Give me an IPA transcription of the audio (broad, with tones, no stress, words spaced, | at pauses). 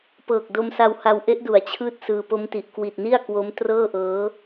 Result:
pɤː˨˩k̚ do˧msa˧wha˧w ʔe˦˥ʔdu˩˦a̯t͡ɕʰɯː˦˥t̚ sɯː˧ po˦˥mti˨˩ʔ kwi˨˩t̚ni˥˩a̯kwo˦˥m trɤː˥˩ʔɤː˦˥